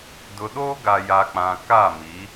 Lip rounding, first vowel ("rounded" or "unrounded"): rounded